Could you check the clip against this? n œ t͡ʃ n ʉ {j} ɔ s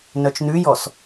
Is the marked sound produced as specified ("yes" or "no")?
yes